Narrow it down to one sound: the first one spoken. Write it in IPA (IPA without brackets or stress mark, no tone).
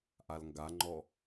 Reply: ʔ